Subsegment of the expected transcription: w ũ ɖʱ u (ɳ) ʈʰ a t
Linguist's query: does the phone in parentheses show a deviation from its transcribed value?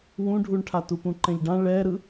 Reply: no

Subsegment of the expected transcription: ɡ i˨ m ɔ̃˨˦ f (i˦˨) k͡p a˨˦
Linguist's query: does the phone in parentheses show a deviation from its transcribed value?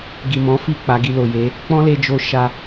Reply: no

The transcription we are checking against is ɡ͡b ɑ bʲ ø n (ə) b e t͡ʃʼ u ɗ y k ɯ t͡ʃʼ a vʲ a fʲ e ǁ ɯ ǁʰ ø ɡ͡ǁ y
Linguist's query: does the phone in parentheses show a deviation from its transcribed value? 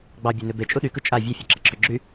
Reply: yes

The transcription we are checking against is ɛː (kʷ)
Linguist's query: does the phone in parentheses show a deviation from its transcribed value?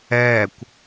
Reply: no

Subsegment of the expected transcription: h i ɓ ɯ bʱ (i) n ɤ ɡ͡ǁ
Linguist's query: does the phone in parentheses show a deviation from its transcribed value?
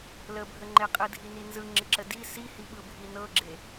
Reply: no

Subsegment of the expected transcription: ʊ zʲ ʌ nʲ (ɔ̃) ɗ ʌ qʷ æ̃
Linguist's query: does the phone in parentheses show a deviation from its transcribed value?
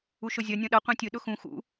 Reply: no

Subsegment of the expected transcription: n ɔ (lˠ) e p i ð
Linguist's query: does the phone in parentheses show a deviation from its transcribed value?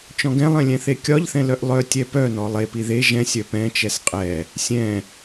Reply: no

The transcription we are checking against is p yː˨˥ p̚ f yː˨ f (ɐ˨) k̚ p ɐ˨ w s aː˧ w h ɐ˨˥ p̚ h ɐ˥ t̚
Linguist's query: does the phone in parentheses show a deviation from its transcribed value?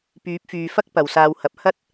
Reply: yes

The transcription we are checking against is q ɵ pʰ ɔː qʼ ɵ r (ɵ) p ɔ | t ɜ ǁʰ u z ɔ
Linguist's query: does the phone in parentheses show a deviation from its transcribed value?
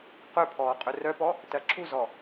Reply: yes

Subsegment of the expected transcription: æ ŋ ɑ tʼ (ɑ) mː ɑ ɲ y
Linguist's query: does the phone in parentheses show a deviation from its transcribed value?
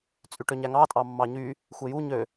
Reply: no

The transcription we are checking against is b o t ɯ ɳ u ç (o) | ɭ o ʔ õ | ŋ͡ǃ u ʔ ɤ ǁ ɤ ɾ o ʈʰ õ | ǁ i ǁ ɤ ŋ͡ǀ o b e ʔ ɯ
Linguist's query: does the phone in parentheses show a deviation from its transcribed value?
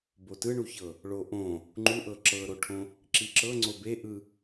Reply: yes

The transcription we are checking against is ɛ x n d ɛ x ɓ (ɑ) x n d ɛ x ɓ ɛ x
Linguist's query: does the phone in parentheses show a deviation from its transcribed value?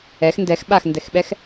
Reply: yes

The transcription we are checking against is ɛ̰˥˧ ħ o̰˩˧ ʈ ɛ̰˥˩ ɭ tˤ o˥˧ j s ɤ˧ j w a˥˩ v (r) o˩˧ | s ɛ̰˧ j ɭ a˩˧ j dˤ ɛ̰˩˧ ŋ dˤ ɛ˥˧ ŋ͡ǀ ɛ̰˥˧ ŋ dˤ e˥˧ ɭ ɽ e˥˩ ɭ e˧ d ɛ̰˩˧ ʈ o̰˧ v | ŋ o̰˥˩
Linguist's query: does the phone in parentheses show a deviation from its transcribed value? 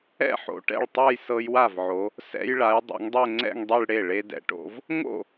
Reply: yes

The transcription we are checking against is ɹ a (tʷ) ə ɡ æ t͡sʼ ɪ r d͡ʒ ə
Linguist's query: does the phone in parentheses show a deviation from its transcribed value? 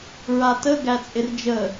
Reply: yes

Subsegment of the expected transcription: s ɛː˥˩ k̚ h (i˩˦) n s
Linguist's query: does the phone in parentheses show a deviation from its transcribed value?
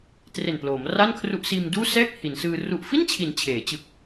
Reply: no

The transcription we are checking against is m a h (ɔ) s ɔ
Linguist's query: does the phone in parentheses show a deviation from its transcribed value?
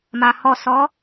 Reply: no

